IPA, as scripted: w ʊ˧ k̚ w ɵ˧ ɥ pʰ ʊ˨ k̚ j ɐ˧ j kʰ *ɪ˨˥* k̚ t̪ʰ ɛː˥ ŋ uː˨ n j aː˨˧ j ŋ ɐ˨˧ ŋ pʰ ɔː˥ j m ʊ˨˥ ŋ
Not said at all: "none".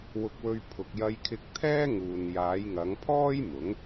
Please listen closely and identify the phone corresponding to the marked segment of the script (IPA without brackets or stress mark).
ɪ˧